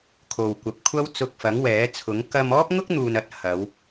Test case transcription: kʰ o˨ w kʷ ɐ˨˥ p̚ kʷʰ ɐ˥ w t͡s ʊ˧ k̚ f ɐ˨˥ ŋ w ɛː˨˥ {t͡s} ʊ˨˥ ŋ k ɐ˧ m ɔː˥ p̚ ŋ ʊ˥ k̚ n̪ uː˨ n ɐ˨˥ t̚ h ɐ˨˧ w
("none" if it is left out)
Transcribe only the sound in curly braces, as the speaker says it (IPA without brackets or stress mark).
t͡sʰ